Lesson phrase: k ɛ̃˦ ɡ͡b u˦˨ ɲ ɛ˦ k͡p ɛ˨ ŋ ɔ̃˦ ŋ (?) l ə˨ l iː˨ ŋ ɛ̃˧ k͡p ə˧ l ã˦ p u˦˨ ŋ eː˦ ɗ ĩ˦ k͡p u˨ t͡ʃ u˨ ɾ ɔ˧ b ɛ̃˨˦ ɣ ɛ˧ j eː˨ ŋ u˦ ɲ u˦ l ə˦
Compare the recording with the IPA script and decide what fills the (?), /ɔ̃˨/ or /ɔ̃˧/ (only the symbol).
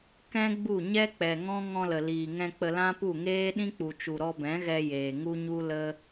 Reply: ɔ̃˧